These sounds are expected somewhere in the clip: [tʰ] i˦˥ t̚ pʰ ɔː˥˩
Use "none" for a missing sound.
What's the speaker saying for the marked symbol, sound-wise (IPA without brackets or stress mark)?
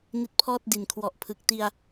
n